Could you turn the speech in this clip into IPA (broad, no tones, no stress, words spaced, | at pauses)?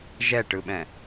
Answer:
ʒɛʈɯɓɛ̃